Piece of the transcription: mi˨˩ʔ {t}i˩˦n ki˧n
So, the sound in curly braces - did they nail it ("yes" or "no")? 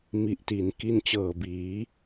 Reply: yes